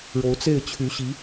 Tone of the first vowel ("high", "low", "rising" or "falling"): rising